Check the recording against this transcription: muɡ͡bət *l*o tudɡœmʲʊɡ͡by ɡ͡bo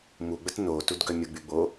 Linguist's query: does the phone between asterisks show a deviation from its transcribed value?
yes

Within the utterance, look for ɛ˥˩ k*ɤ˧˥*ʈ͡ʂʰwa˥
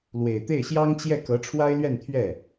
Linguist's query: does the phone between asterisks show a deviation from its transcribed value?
no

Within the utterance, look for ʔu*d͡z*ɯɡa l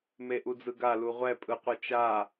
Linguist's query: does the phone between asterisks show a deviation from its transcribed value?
no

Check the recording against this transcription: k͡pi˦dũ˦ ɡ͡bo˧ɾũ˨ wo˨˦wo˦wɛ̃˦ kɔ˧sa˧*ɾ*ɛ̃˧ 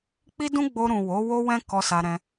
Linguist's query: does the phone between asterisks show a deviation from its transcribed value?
no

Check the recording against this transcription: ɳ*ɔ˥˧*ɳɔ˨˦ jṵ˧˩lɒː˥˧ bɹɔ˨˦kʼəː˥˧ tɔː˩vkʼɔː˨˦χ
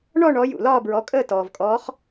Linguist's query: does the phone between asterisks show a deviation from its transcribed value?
no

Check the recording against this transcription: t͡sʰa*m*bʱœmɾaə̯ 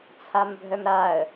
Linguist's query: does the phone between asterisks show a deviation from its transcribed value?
no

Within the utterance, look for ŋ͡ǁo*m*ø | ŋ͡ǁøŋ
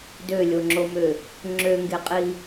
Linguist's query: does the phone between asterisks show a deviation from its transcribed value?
no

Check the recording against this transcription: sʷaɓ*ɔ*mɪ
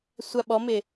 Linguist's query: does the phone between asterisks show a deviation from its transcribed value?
no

